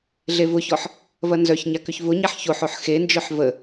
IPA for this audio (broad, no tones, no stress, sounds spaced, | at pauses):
ɮ e v ʊ ç ɔ ħ | v ɐ n z œ ç ɲ a k ʏ ç v ʊ ɲ a ħ ç o ħ o ħ x e n d͡ʒ œ ħ v ə